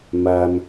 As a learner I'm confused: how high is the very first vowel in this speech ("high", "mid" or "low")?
low